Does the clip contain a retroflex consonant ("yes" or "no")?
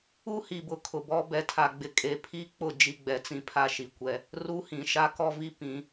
no